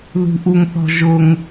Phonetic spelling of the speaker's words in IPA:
ðṳʔuŋθɔ̤ʒʊŋ

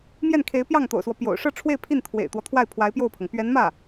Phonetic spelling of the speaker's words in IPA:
mjɛ˥˩nkʰe˧˥ɪ̯pjɑ˥˩ŋ t̪o̰˨˩ʊ̯swɔ˦ pjo̰˨˩ʊ̯ ʂɤ˥˧ʈ͡ʂʰwe˥˧ɪ̯pʰi˥˩n t̪ʰwḛ˨˩ɪ̯t̪wɔ˦ t̪ʰwa˥˩ɪ̯ pʰwa˧˥ɪ̯pjo˥˩ʊ̯pʰɤ˩ŋ pɥɛ˧˥nmä˥˩

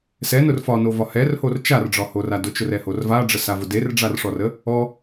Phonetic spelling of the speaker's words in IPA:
sɛnʊr fɒnovɒ hɛrhor t͡ʃarɖ͡ʐɒhora dʊt͡ʃʊrɛhor vaɖ͡ʐəsavʊ derɖ͡ʐarʂɔrə | ɔ

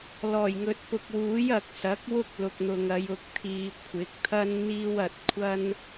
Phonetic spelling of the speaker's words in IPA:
lɔː˨˩jŋɵ˨t̚pʊ˨k̚wuː˨˥j ɐ˨k̚sɐ˨˥k̚ wʊ˥k̚lʊ˨k̚n̪ʊ˨ŋɐ˨˧j ʊ˨˥k̚t̪ʰiː˨ kʷʰɪ˨˥k̚t̪ʰɐ˥n n̪iː˥wɐ˧t̚ kʷʰɐ˥n

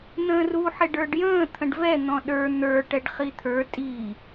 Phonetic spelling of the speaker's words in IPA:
n̪ə̃ːru ħɪɖə˞ɖjə̃ː t̪ʰə̃ɖvɛ n̪ɔ̃ɗə˞ n̪ə˞ ʈɛɖχit̪ʰə˞ tʼi

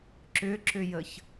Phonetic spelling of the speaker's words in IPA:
ǁʏǁʏjəç

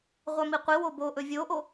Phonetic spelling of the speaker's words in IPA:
ʁʷamiqʷiwo boʔɵ vʲoʔo

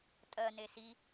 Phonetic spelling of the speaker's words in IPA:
tʼɜne si

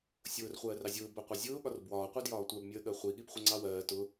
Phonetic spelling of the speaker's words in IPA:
sʲʊːr χʷɜːrɑzʲʊː bɜqʷɑzʲʊː ɠɒrbwɒː qʷədjɒːtʷɜb mʲəːɠɜχʷi ɠibχʷəŋ͡ǀɑwɜː tʊ

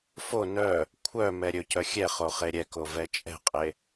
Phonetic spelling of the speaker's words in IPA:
fo nœ | kʷʰœ mɛɾʲɵcœ xʲɛχo χeɾʲɛko vɛt͡ʃʼɛ̤qʼe

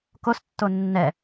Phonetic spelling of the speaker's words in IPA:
kostːo nːɛ

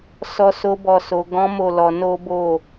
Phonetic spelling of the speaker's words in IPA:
sɔ˦so˦bɔ˦˨so˧ ɡɔ̃˦ mo˦˨lɔ˧ no˦bo˦˨

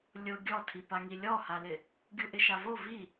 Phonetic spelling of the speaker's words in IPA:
lʲʊ ɡʲɔtʰipaŋi lʲɔhalɪ | ɡʲuʔɪʃavo vi

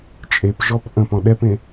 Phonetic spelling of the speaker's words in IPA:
t͡ʃʼepʒɔp ʔə̃p ɔ̃ɗɛpẽ

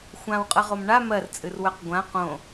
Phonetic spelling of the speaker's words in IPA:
xʷãwqʼəʁom ɳa mɜrt͡sʼɨrwœq ɡʷã qõ

